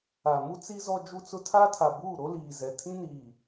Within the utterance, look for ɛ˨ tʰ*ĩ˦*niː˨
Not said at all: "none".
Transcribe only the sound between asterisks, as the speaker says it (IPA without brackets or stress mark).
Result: ĩ˦